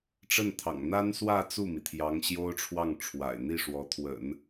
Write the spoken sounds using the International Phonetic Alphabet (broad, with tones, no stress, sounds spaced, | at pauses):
ʈ͡ʂ ə˥˩ n t̪ʰ ɑ̰˨˩ ŋ n̪ a˥ n s w ä˥˧ t͡s u˥˩ m i˩ t̪ʰ j ɑ˧˥ ŋ ɕ j o˥ ʊ̯ ʈ͡ʂʰ w ɑ˥˩ ŋ ʈ͡ʂʰ w a̰˨˩ ɪ̯ n̪ i˥˩ ʂ w ɔ˧˥ t̪ʰ w ə̰˨˩˦ n